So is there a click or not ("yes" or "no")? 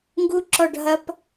yes